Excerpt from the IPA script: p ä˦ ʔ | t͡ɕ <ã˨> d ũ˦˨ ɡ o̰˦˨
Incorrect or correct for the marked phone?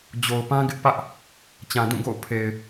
correct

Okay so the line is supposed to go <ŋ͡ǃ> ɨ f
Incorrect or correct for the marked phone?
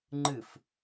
correct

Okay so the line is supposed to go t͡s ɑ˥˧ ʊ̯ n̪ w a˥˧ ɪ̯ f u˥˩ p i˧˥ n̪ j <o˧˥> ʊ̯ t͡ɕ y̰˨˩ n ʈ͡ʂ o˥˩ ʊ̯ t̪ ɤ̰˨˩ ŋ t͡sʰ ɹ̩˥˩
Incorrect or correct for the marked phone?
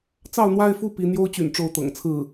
incorrect: o˥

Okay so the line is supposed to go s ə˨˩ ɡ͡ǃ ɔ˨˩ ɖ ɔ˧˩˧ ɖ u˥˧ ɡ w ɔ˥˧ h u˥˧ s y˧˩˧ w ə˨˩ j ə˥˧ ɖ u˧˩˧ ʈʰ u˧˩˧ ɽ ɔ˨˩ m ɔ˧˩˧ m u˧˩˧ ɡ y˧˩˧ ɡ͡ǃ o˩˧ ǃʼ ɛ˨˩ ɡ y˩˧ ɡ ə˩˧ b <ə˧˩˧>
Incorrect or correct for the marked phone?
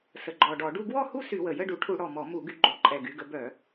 incorrect: œ˧˩˧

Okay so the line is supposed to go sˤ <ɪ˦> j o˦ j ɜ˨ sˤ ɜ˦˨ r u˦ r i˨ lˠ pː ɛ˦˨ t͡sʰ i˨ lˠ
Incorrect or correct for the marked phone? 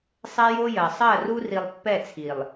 incorrect: ɛ˦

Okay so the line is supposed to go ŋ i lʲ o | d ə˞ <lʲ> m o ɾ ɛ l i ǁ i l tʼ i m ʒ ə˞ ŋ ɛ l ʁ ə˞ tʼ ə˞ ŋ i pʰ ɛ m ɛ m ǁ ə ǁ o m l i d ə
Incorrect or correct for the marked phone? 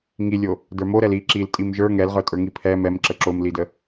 incorrect: none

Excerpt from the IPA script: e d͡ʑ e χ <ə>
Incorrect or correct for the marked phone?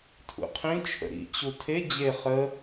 correct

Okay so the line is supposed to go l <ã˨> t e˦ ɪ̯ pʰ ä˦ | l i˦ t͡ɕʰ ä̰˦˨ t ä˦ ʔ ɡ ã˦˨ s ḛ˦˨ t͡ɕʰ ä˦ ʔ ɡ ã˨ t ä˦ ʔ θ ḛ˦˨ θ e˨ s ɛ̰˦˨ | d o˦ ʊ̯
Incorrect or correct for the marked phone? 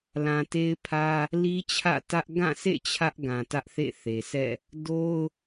correct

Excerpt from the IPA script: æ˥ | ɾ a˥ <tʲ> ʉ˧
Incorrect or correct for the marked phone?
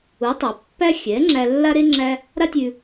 correct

